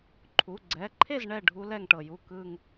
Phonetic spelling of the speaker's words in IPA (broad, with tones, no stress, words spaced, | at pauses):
ǃʰu˩˧˩ɡ͡ǀɛ˩˧˩ǃʰe˥˩z ɳɛ˥˩ ɖʱu˦˥lɛ˥˩ŋʈɤ˧˩ju˥˩ kɯ˥˧ŋ